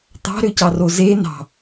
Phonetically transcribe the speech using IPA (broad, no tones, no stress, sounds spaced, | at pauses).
t̪ ɑ̤ ɾ ø c ɑ r o z e n ɑ̤